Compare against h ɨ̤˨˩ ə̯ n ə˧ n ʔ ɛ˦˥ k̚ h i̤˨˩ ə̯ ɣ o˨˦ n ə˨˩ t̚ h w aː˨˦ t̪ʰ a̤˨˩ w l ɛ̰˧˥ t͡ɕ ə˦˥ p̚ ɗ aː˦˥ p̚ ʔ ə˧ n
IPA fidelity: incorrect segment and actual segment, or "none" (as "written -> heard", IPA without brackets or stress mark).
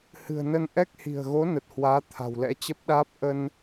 none